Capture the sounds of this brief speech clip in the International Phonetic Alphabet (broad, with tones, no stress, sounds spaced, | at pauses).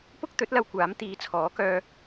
p ʊ˥ k̚ t̪ ɵ˨˥ t̚ l ɐ˧ w kʷ aː˨˥ m t̪ iː˨˧ t͡sʰ ɔː˨˥ k œː˧